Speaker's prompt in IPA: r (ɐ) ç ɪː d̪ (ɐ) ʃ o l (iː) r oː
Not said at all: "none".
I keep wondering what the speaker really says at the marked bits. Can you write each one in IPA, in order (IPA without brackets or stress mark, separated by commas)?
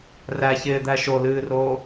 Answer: æ, æ, ɨː